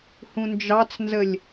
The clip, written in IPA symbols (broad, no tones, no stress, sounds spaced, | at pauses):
h ũ n d͡ʒ ɑ t͡s n z ə lʲ